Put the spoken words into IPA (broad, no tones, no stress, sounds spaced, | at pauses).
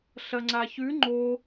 ɬ ɐ ŋ͡ǀ a ç ʉ ŋ͡ǃ o